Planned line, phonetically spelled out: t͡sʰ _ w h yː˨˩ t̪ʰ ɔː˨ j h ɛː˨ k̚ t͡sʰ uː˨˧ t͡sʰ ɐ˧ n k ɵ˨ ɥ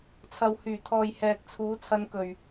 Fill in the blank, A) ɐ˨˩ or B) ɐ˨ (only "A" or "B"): B